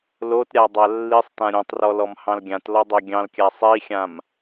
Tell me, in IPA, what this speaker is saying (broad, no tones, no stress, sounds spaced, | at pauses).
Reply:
l o t ɾʲ a dˤ a lː i sˤ t ã ɾʲ õ tˤ r ɔ l ɔ m h ɑ̃ l ɡʲ ã t l ɔ dˤ o ɡʲ ɑ̃ l kʲ a sˤ i xʲ ã m